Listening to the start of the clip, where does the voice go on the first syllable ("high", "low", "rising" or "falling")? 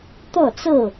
falling